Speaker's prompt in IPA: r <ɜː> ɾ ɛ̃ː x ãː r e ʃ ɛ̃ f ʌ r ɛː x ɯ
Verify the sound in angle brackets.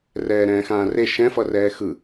incorrect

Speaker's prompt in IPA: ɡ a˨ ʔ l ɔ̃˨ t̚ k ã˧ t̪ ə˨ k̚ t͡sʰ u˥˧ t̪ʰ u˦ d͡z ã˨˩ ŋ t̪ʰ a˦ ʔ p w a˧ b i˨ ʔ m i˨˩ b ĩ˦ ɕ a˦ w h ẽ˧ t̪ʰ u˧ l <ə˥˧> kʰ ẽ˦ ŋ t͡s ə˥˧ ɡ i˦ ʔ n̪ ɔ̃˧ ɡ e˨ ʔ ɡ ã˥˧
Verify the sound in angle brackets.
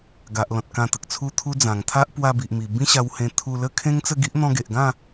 correct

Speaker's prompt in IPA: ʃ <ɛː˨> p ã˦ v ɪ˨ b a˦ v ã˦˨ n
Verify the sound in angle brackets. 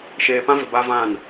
incorrect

